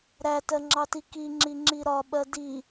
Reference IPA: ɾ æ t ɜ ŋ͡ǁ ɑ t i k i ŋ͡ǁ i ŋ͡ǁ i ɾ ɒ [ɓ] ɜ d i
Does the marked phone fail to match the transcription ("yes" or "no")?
no